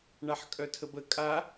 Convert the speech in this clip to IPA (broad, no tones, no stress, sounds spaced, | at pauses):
ɳ a ħ kʼ œ tʰ ə b ə kʼ a